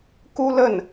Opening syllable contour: high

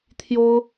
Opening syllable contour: high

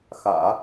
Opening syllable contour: low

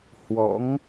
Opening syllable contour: rising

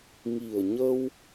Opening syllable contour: low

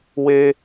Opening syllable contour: high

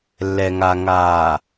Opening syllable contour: low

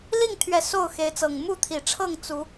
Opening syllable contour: falling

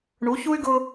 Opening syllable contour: rising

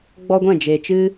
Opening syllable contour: high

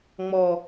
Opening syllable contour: low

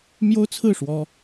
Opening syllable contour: high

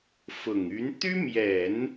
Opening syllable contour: low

